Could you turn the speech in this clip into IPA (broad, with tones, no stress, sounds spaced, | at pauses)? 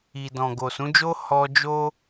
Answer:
i˨ d ɔ̃˨ ɡ o˨ s ũ˨˦ d͡ʒ o˦ h ɔ˦ d͡ʒ o˦